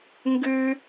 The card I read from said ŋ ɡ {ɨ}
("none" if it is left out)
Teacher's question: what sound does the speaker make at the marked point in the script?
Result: ʉ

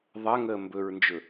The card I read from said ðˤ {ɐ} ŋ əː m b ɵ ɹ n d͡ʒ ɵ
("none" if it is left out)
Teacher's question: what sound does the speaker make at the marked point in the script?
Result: ɐ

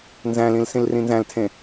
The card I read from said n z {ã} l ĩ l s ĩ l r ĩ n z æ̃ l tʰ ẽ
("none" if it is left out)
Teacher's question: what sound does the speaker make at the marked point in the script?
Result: æ̃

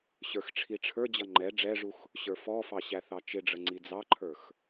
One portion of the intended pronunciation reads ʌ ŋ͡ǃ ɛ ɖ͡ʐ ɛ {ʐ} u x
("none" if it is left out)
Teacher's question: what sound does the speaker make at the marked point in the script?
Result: ʐ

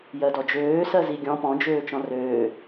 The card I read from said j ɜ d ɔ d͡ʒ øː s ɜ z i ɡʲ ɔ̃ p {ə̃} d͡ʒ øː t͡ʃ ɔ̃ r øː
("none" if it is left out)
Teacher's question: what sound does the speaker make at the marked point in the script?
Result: ɔ̃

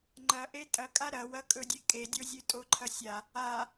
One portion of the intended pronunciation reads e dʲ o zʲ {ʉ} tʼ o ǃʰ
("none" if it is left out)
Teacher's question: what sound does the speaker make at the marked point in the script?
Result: ʉ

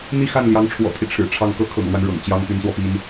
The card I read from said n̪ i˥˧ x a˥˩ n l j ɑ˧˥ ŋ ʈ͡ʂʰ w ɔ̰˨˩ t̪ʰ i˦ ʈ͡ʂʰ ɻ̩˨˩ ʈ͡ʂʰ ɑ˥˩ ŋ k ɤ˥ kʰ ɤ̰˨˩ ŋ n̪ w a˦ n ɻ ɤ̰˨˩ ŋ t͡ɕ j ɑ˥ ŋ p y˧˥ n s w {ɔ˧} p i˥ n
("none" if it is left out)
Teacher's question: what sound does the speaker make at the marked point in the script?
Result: ɔ˧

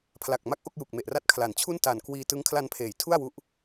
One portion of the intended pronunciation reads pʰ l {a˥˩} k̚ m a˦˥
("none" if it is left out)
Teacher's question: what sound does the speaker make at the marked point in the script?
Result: a˨˩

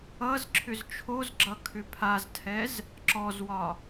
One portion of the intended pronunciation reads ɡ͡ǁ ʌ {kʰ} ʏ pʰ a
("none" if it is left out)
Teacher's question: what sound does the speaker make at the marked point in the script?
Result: kʰ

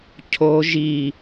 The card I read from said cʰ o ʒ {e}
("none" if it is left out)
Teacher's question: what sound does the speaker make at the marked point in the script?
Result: i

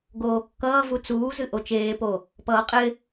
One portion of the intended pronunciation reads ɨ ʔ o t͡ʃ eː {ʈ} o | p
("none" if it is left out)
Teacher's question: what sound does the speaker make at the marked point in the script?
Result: p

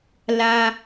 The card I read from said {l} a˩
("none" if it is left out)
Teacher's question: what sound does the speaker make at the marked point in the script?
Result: l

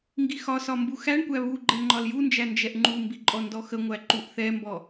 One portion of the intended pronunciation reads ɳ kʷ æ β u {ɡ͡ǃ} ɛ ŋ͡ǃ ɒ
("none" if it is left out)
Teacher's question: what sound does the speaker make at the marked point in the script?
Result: ɡ͡ǃ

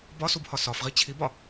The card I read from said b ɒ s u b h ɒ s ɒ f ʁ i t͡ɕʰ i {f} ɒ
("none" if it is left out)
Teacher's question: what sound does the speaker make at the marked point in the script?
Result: b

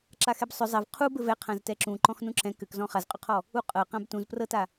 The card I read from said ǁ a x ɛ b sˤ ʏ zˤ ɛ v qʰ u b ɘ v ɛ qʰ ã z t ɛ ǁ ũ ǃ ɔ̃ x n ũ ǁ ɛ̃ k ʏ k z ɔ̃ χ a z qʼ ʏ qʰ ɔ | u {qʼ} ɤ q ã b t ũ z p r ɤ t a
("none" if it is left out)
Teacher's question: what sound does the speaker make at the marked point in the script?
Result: qʼ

